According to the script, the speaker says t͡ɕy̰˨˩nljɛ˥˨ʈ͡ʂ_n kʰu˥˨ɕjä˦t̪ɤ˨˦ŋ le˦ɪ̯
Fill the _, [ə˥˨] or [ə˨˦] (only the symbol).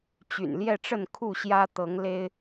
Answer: ə˥˨